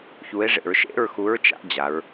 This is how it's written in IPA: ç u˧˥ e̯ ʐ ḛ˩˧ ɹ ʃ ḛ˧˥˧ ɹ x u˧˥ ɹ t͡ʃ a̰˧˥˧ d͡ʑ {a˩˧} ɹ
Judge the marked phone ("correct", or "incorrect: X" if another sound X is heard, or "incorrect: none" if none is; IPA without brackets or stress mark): correct